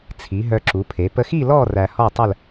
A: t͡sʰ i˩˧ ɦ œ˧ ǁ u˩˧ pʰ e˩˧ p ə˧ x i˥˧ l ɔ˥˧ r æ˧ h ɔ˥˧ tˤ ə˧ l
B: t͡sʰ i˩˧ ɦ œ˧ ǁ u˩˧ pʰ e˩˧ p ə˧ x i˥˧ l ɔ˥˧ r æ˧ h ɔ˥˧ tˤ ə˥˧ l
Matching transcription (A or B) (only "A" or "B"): B